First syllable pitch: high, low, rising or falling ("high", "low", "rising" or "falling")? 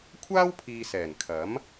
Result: high